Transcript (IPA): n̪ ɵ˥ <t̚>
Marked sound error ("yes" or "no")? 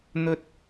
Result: no